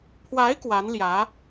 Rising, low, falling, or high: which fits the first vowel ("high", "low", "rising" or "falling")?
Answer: rising